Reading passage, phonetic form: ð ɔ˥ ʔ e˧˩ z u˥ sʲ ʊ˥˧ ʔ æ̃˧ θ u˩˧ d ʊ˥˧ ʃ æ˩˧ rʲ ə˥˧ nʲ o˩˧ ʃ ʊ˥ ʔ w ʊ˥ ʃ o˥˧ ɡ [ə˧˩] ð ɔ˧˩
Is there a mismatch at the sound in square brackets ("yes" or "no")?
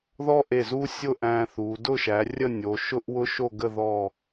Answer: yes